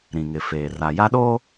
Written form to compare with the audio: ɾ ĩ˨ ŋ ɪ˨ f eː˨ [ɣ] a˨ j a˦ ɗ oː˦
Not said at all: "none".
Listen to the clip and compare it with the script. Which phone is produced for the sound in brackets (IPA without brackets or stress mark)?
r